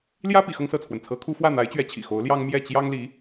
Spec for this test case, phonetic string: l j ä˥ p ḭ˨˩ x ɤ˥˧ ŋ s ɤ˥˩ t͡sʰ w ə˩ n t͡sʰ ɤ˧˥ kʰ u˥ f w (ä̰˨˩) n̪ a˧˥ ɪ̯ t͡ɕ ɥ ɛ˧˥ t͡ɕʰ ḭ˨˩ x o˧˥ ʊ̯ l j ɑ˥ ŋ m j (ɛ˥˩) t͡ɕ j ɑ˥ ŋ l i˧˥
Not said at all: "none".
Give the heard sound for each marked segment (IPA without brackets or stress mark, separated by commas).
ä˥˩, ɛ˥˩